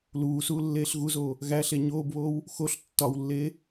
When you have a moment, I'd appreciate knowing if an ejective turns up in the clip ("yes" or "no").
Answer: no